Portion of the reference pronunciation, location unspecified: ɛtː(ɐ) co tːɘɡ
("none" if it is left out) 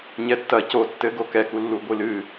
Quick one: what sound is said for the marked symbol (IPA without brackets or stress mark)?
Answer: ɐ